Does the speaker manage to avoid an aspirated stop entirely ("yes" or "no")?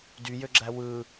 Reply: yes